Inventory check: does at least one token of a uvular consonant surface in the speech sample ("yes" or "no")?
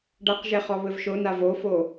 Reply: yes